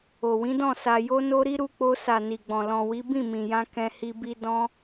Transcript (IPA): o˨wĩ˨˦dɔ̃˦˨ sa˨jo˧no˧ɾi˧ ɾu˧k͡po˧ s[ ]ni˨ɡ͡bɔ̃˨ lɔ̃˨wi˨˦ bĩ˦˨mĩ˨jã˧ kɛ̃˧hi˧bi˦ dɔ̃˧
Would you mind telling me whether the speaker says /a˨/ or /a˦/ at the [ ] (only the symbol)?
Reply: a˨